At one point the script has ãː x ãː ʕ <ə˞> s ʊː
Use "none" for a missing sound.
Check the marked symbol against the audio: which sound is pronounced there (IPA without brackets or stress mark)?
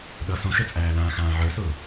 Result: ə˞